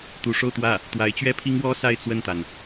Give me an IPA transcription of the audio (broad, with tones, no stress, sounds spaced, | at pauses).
t̪ u˧˥ ʂ o˥˧ ʊ̯ t̪ w ä˥˩ | t̪ w a˧˥ ɪ̯ t͡ɕ ɥ ɛ˥ pʰ i˥ ŋ w ɔ˥ s a˥˧ ɪ̯ t͡s w ə˥˩ n t̪ a˩ n